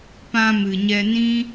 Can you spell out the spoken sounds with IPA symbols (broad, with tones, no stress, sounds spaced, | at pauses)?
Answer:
p ã˧ m ɨ˨ ɲ ɛ˧ n ĩ˦